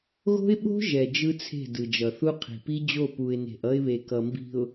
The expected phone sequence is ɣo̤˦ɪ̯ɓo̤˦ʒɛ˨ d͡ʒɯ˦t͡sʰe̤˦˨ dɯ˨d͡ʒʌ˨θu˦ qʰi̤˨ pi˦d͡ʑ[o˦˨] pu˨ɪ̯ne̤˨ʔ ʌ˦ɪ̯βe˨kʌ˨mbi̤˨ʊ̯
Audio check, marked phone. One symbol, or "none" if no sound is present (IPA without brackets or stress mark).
o˦˨